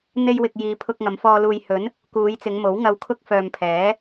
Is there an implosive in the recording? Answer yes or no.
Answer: no